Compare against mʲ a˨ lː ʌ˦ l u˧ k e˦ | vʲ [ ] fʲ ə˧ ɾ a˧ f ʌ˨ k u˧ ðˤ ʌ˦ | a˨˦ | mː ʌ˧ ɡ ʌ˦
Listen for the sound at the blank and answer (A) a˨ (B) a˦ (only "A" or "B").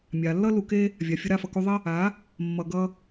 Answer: A